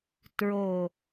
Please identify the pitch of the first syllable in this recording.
low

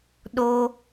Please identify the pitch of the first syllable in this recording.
high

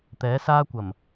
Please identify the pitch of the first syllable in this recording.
rising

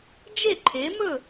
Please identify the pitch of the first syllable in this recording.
falling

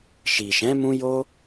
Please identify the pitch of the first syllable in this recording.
low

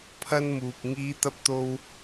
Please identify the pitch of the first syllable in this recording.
high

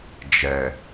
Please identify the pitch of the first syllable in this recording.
low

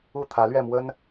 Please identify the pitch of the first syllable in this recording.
falling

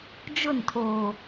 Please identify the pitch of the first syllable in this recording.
falling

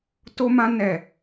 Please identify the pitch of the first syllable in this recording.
high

